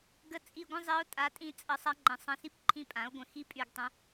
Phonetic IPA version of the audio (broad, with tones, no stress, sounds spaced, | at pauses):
ɡ ə˧˥ t͡sʼ i˦˨ ɡʷ ə̃˥ zˤ i˧˥ o̯ tʼ a˧˥ tʼ ĩ˥ t͡sʼ ə˧˥ sˤ a˧˥ ŋ͡ǃ ə̃˩˥ sˤ ə̃˦˨ s i˥ p ǃʰ ĩ˦˨ pʼ ã˩˥ o̯ ɡʷ ə̃˦˨ x i˥ pʼ y˦˨ ɡ tˤ ə̃˧˥